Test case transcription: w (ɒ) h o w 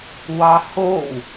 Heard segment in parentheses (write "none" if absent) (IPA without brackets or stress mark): ɑ